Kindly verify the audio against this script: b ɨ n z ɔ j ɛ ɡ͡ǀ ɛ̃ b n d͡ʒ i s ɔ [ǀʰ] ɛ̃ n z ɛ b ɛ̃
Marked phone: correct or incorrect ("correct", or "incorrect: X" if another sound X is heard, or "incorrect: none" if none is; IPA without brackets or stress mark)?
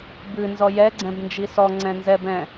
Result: incorrect: ŋ͡ǀ